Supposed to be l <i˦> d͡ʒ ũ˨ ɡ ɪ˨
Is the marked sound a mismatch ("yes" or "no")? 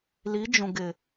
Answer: yes